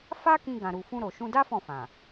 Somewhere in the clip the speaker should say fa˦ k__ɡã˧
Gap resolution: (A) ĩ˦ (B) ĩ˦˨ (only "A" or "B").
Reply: A